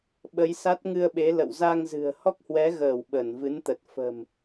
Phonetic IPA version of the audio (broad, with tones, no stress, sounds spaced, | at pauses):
ɓ ə˨˦ j s a˦˥ t̚ ŋ ɨ˧ ə̯ ɓ e˨˦ l ə̰˧˨ w z a˧ ŋ z ɨ̤˨˩ ə̯ h ɔ˦˥ k̚ h w ɛ˨˦ ɣ əː˧˩ w ɓ ə˧˩ n v ɨ˨˦ n t̪ ə˨˩ t̚ f ə̤˨˩ m